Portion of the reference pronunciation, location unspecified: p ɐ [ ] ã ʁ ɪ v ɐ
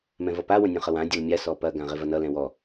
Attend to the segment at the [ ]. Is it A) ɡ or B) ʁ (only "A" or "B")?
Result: A